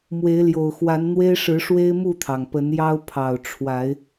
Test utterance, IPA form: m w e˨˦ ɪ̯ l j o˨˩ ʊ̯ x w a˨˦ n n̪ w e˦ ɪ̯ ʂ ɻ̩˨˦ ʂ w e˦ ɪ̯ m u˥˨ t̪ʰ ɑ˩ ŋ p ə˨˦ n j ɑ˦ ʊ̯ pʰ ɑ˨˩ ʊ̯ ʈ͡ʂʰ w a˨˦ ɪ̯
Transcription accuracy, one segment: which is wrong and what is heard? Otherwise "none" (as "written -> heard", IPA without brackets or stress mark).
none